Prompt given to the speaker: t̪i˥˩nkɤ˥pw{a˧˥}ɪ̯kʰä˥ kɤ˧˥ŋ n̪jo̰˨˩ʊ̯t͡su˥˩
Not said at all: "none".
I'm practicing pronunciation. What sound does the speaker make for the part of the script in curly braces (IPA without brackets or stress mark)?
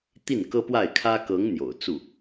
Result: a˥˩